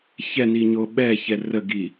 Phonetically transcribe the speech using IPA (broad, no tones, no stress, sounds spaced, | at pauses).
ç ɛ n i ɲ o ɓ ɛ ç ɛ r ə ɡ i